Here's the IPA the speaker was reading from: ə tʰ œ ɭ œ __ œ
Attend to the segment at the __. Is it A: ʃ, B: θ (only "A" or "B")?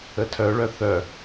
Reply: B